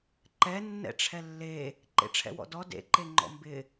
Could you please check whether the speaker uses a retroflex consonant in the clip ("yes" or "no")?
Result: yes